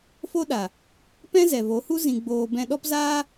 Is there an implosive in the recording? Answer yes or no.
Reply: yes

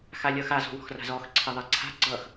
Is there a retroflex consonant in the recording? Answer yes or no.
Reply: no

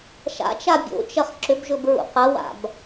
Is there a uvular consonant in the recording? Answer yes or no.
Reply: yes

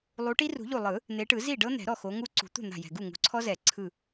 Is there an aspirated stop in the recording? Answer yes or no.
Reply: yes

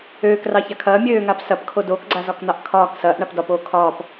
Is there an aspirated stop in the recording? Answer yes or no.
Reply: yes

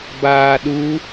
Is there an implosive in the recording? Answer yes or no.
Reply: yes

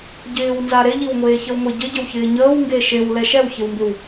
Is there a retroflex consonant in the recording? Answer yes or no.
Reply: no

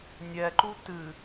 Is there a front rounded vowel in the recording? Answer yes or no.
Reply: no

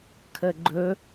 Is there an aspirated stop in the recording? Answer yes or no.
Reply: yes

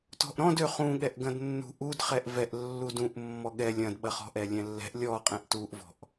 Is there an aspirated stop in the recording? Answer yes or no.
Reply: no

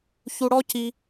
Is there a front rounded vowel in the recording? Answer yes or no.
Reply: no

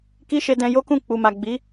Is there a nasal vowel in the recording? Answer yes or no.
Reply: yes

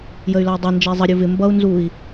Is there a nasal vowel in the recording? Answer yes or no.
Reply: no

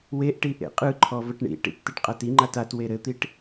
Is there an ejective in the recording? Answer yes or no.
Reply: yes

